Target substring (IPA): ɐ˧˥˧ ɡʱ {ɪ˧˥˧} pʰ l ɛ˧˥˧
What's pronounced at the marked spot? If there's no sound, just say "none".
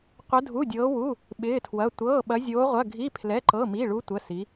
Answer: i˧˥˧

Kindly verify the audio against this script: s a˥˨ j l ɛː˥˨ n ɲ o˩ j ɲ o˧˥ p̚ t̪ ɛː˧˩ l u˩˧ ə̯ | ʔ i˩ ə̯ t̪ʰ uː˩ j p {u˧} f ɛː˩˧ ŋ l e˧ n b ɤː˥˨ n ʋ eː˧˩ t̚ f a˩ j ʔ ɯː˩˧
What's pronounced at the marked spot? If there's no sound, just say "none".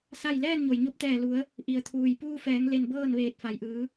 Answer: uː˧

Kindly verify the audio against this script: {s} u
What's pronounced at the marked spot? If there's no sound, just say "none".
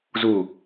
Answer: z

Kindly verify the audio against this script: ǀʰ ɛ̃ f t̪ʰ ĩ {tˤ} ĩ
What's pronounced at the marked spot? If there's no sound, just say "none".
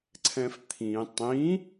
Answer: tˤ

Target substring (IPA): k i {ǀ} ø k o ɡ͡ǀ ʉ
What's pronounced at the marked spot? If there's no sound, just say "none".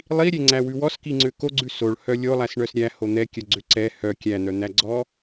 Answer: ŋ͡ǀ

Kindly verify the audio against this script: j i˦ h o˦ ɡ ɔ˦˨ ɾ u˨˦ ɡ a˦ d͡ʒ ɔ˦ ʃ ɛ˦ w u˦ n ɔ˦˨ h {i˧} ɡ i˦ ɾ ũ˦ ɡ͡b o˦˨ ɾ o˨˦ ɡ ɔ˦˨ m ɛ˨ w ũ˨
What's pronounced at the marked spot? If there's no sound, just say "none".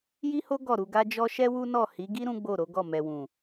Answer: i˨˦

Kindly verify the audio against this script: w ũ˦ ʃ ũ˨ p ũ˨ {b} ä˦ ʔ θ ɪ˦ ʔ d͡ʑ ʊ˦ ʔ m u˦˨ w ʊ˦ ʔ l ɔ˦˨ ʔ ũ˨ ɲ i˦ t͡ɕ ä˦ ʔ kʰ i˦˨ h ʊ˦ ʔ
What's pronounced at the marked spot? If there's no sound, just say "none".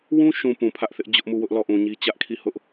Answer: pʰ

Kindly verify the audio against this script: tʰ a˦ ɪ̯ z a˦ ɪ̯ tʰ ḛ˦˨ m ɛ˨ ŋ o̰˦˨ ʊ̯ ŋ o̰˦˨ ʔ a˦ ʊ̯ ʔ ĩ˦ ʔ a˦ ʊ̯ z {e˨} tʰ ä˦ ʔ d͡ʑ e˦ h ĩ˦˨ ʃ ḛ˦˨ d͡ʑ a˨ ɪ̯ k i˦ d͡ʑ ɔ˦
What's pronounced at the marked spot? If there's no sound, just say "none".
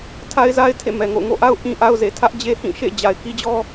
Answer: e˨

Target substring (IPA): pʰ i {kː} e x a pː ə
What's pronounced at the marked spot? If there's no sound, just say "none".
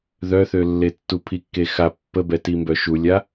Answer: kː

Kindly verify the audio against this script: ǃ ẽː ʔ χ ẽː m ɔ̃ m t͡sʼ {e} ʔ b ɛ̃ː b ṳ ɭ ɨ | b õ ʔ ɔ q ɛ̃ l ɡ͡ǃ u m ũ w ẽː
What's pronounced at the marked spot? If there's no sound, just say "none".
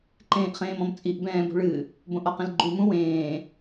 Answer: i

